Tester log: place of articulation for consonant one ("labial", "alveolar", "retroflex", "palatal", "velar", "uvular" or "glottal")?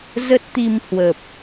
alveolar